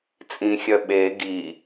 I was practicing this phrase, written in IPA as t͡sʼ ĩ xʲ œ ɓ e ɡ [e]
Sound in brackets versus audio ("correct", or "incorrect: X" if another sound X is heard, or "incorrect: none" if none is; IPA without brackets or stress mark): incorrect: i